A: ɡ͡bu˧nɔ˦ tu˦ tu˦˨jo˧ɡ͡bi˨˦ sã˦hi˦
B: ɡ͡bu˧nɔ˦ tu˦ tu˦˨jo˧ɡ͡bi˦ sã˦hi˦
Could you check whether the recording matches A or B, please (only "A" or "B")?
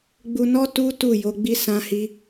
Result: B